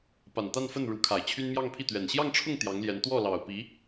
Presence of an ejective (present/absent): absent